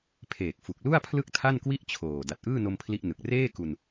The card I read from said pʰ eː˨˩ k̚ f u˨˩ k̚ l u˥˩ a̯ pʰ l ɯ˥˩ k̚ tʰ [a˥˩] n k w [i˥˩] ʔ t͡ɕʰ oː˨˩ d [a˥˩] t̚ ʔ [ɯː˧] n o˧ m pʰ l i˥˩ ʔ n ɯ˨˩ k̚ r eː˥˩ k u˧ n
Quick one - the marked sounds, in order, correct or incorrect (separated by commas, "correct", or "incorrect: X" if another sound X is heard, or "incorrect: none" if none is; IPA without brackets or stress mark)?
correct, correct, incorrect: a˨˩, incorrect: ɯː˥˩